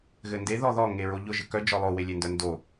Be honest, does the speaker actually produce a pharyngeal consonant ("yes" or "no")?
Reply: no